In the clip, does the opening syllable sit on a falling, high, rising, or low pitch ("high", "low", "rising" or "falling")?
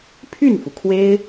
falling